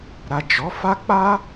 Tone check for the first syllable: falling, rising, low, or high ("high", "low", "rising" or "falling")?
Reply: low